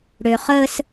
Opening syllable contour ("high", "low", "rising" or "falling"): low